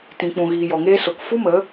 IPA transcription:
tĩ˨k͡pũ˨ ɣiː˨jɔ˨ŋeː˧so˨k fu˦mə˨˦

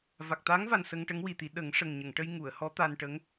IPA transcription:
va˨˩k̚t̪a˧˥ŋva˨˩n sə˧ŋʈə˧˥ŋwi˨˩t̪i˨˩˦ ɗə˨˩˦ŋʂə˨˩ŋ ɲə˨˩˨ŋʈə˧j ŋu˨˩˨ə̯hɔ˧˥ t̪a˧nʈə˧˥ŋ

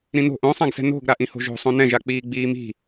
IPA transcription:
ɾĩno̤ ʔõsˤãɡsɛ̤ no̤ɡ ɾaʔĩho̤ʒo̤ sˤõnɛ̃ʒa k͡piːɡ͡biːmi̤

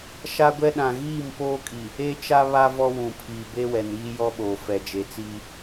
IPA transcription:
ʃa˦ɡʷɛ˦ɗã˨ ɣiː˦˨mpoː˦kʼi˨ | e˦t͡ʃa˦βa˦ vɔ˦wũ˨pʰiː˨ be˦wɛ˨niː˦ jɔ˦ɓoː˨ fɛ˨d͡ʒe˨t͡siː˦

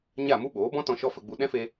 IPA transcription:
ɲa˦˨mu˦ ɓoː˨˦bɔ̃˦tɔ̃˧ ʃɔ˦fə˧ɡ͡bu˧ ɗɛ̃˦fe˧

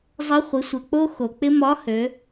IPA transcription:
zˤɘ˧˥χʷɪ˩˧sʷɘ˩k͡po˥ xo˩k͡pɪ˥ mɒ˧˥hø˩˧

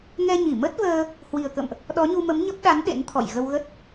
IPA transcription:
ŋɛ˧ɲi˧˩ mə˦˥t̚vəː˧ | hwi˨˩ə̯kə̰˧˨mʔ | ɗɔ˨˦ɲu˧mə˨˦m ɲə˦˥p̚ ɗa˨˦n ɗḛ˧˥nt̪ʰɔ̰˧˨j ɣə˧wɣə˦˥t̚

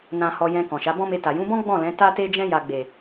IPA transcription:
nã˧hɔ˧jɛ̃˧ kɔ̃˨ʃa˨˦bɔ̃˦me˧ ta˨jũ˨˦bɔ̃˦ ɡ͡bɔ̃˦˨lɛ̃˨˦ ta˧te˧d͡ʒɛ̃˧ ja˨ɡ͡be˨

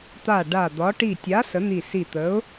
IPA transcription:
t̪a˧˩ ɖa˧˩d̪ɒ˨˥ ʈi˧˩tʲa˨˥ sə˨˥n̪i˧˩si˧˩ t̪ə˨˥ʊ̯

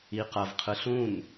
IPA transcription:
iqʌvqʰɯ ɬũn

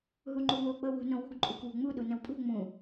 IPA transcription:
ɦuŋ͡ǃuwo k͡pɤwṳ nõwṳɡ ǃʼukwṳŋ͡mu ɗunə̃wpʼṳ ŋ͡mũ

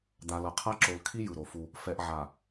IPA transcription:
d̪a˨lʌ˨qʰa˦ ǁo˨l kʰi˦jɯ˨ ɾo˨fu˦ | fɛ˨ʔʕa˨

